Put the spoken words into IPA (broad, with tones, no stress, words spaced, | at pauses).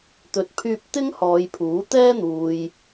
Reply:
t̪ɵ˨˥t̚pʰyː˧p̚t̪ɪ˥ŋ hɔː˨˧jpʰuː˨˥t̪ɛː˥n̪uː˨j